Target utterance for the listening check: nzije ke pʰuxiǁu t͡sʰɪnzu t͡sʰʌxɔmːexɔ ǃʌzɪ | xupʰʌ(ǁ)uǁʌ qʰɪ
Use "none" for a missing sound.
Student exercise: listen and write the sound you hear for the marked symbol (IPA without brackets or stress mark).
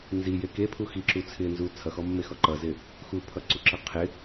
ǀ